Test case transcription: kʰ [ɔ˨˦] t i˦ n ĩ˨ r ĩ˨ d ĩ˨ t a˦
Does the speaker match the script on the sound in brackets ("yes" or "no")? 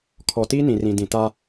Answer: no